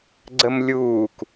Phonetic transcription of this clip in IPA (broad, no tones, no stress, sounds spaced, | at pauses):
ɡ͡ǀ ə m lʲ uː k